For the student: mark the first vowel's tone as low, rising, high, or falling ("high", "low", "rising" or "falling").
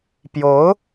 rising